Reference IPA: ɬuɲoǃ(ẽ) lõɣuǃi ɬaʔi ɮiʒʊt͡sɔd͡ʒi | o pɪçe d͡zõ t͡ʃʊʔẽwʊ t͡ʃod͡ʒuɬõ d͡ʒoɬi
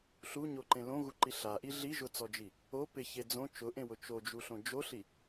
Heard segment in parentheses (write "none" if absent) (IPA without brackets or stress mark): ẽ